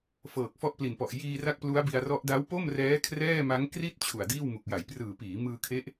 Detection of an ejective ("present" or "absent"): absent